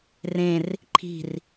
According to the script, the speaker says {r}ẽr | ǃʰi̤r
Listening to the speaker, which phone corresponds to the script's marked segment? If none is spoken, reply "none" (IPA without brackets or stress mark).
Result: r